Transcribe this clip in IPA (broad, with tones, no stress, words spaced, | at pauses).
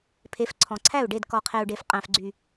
pʰe˨˦fǀʰɔ̃˨ǀʰæ˦˨u̯ɖe˦˨d kɔ˨qʰe˨u̯ɖe˨f qʼæ̃˨fɡ͡ǀy˨